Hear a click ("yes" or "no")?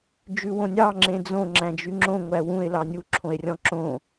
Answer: yes